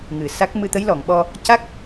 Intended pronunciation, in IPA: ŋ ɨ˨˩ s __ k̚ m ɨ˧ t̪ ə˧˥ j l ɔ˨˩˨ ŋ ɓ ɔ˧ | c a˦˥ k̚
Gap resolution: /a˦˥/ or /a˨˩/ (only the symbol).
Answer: a˦˥